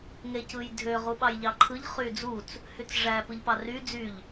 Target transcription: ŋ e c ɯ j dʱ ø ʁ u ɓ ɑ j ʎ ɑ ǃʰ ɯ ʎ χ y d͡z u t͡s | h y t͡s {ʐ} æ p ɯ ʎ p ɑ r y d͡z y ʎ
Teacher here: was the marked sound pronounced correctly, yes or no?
yes